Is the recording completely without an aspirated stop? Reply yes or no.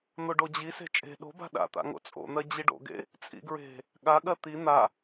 yes